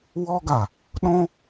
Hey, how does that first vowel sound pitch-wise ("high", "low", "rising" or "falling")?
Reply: high